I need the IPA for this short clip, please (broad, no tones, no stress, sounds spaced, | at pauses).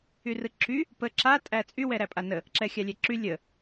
y r ɯ ǁ y | p ə ǁ a tʼ æ t͡sʼ y w ɛ ɾ æ pʼ a n ə | ǁ ɛ xʲ a lʲ ɛ ǁ y lʲ ə